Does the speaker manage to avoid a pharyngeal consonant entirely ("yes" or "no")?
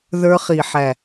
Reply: no